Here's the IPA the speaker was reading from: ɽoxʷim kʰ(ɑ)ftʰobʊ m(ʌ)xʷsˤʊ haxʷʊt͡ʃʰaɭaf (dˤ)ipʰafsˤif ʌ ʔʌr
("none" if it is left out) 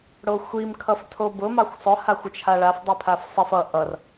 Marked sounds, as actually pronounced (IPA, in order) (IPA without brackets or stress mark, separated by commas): ʌ, ɑ, dˤ